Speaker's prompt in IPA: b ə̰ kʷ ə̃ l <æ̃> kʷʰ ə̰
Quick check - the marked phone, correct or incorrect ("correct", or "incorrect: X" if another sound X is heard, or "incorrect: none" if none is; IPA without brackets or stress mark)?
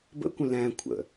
correct